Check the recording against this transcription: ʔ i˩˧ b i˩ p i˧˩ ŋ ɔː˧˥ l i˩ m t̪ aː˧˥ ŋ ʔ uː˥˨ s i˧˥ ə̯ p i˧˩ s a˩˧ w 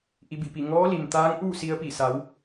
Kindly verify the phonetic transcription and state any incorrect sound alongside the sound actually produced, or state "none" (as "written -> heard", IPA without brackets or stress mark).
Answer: none